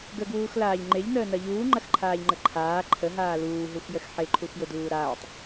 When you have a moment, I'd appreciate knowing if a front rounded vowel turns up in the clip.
no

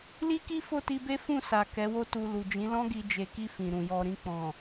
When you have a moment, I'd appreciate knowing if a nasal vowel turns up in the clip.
yes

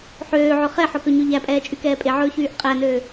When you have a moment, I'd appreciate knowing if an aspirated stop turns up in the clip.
no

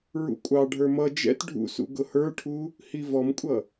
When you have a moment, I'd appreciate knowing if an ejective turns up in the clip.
yes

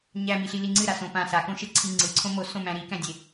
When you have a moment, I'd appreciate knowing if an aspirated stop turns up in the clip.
yes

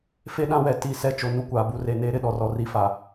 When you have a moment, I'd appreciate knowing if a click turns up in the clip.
no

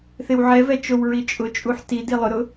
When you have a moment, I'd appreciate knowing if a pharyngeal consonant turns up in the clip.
yes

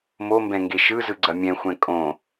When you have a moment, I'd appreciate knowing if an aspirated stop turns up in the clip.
no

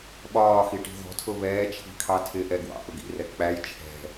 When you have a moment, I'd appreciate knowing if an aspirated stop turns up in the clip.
yes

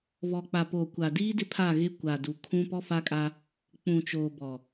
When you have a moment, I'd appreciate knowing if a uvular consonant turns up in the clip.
no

